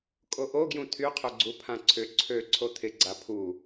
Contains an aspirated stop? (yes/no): yes